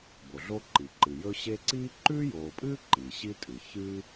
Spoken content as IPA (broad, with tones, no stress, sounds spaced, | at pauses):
b o˩ ɮ o˦ ǃ i˩ ǃ ɨ˩ j ɵ˦ ɕ e˦ ǀ iː˥ ǃ ʉː˥ j oː˨ pʼ ɨː˥ ǃ iː˩ ɕ i˥ tʼ ɨː˩ ç ɨː˦